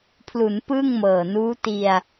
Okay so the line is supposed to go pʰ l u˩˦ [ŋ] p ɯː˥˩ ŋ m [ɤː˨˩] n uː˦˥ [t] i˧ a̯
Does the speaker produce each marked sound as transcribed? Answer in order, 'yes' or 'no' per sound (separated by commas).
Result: no, yes, yes